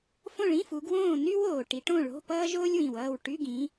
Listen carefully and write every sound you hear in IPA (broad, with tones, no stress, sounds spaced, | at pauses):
f õ˥˨ ɭ ĩ˧˥˧ f u˨˦ ɡ w õː˥˨ n y˥ w oː˨ ʈ i˨˦ ʈ õ˥˨ ɭ o̤˧˥˧ p ʌː˥ ʒ oː˥ lʲ w ĩ˨ w ʌː˥˨ w ʈ y˧˥˧ ɡ ĩ˨˦